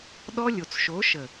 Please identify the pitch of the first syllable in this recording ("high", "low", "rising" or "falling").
high